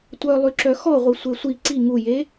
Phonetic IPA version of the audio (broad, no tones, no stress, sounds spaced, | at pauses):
tʷ œ lˠ y ǁ œ x ɔ ʁʷ i sʷ e sʷ i ǀ i ŋ u j e